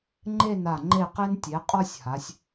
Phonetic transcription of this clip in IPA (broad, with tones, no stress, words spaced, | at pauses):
ŋ͡ǃe˥˧na˧˩ ŋ͡ǃe˧˩qe˧ntʲe˩˧ qʼɔ˥˧sʲha˩˧sʲ